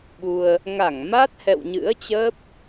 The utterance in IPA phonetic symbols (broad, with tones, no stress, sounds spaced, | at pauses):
ɓ u˧ ə̯ | ŋ a˧˩ ŋ m a˦˥ t̚ h ɛ̰˧˨ w ɲ ɨ̰˧˥ ə̯ t͡ɕ əː˦˥ p̚